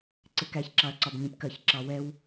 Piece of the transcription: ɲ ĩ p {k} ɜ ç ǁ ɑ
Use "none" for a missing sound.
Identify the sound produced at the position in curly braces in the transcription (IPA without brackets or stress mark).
k